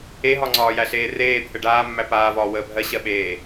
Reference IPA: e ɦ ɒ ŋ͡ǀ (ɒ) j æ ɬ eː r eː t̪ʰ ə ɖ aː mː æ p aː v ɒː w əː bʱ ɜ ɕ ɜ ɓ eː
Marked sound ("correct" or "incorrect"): incorrect